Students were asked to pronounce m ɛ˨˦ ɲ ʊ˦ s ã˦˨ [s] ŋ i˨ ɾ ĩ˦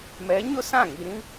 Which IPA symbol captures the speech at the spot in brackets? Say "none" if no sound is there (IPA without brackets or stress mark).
none